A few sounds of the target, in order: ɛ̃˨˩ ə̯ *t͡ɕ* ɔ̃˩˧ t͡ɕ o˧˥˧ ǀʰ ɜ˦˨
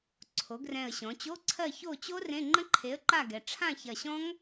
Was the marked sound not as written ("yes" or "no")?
yes